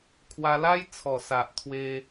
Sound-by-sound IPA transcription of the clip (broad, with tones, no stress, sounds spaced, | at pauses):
kʰ w a˧ l a˦ j t͡sʰ ɔ˨˩ s a˨ ʔ t̪ʰ w e˧